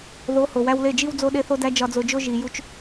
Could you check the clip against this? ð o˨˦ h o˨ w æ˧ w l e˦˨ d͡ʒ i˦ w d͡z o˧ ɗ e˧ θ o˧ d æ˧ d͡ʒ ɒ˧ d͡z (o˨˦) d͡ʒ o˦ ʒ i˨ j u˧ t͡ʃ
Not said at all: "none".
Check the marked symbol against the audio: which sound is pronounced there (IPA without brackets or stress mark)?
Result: o˧